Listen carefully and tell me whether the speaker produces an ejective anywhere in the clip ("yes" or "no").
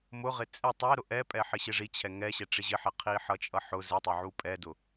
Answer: yes